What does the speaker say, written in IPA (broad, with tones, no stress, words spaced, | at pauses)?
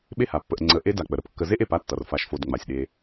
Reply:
ɓe˥ha˩pːə˨ʔ ŋ͡ǀə˨ʔe˥ da˨k͡pə˩ɾə˨p kːə˨ze˥ʔe˨p a˥tːʌ˩rfa˨ʃfo˨d ŋ͡ma˩sʲɗe˨